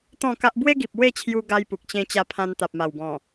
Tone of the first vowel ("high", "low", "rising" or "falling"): falling